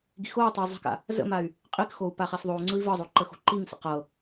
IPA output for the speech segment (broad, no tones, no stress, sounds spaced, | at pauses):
ɡ i̤ x o u̯ tˤ ə i̯ zˤ i̤ k a̰ | z ə̰ m a y̯ | qʼ i k x o u̯ p a χ a s ðˤ o u̯ ŋ͡ǀ ɯ i̯ v ɤ zˤ o ǃ ə x o̤ ǃ i ŋ s ə̰ q ɤ